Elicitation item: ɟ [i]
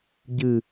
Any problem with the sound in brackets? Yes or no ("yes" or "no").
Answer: yes